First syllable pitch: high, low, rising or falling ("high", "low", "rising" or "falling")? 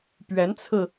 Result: rising